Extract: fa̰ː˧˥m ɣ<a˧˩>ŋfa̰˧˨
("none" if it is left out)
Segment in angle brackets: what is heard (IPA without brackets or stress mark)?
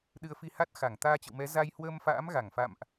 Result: a˧˩